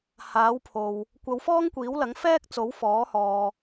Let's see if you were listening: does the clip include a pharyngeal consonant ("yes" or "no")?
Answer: no